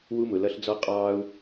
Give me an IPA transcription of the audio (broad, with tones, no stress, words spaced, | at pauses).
wu˦mʊ˨lʌ˦ɬd͡zɔ˦ qʼɑː˦u̯